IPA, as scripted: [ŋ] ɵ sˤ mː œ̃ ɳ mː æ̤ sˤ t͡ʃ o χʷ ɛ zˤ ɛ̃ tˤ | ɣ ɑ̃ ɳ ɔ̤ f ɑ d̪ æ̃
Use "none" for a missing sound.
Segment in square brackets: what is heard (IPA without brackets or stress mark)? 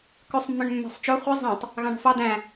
k